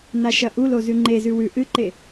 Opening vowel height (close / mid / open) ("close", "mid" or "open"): open